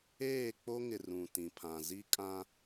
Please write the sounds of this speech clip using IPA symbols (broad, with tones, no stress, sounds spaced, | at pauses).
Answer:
eː˦˨ k͡p o˦ ŋ ɪ˨ r ũ˨ t ĩ˨ pʰ ã˨ z i˦ kʼ ã˦